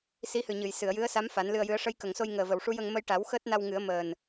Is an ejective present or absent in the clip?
absent